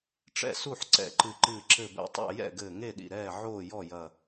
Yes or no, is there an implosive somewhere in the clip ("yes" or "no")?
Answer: yes